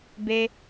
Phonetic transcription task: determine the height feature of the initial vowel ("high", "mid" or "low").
mid